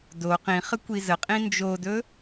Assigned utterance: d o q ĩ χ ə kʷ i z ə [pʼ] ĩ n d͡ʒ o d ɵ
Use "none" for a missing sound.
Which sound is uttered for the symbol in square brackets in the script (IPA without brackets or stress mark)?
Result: qʼ